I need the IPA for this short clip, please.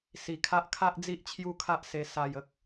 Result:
s i˨˩ kʰ a˦ ʔ kʰ a˦ ʔ d͡z i˦ ʔ t͡ɕʰ j u˦ kʰ a˦ ʔ s e˧ s a˧ j ə˦ k̚

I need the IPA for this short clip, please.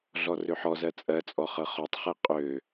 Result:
ɮ ɔ r ø ħ ɔ z ɜ t͡sʼ ɜ t͡sʼ ɔ χ ɤ χ ɔ tˤ χ e qʼ ø

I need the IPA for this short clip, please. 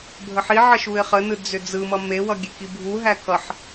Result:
bʱ ə ħ i ʕ ə ʃ u ɪ̯ χ ə n ɯ d͡z ʏ d͡z ɯ m ʌ m e w ʌ ɡʲ e k i bʱ u ɦ æ k ʌ ħ

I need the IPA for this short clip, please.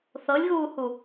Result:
θ ɤ lʲ ɣ uː h u

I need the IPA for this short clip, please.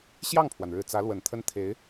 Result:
ɕ j ɑ˥˩ ŋ pʰ w a˩ n ɻ ɻ̩˨˩ t͡s ä˧˥ l w ə˨˩ n t̪ʰ ə˥ n t̪ʰ e˧˥ ɪ̯

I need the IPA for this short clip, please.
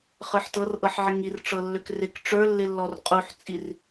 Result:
χ ə˞ ħ t ɤ r ʔ ɤ ħ ʕ ɪ ŋ i r ʈ͡ʂ ɤ lː ø k r ɪ k ʈ͡ʂ ə˞ lː ɪ lː ɔ r qʼ u ħ t͡sʼ i r

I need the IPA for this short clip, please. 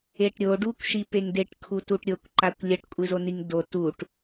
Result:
e ʈ ɾʲ o ɖ u kʷ ʃ i p e ŋ d e ʈ kʰ u t u ʈ ɾʲ o kʷ ǃ a kʷ lʲ ɐ ʈ kʷʼ ɨ z o n i ŋ d o t u ʈ

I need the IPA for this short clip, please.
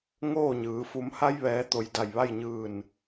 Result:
ŋ oː˥˨ ɲ ɯː˩˧ f u˩˧ m h a˧ j ʋ ɛː˩˧ t̪ o˩ j d a˧˩ j ʋ a˥˨ j ɲ ɯː˧˩ n

